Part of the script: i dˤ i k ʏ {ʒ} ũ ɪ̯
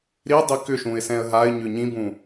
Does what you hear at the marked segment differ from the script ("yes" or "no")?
yes